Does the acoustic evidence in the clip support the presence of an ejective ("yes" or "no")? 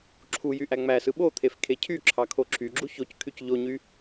no